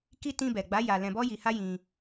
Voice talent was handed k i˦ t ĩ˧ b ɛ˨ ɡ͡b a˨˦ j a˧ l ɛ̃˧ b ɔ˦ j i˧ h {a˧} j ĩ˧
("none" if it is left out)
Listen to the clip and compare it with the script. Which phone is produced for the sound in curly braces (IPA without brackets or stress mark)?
a˦